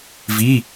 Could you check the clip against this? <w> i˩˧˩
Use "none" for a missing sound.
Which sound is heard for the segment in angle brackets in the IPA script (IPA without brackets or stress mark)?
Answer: v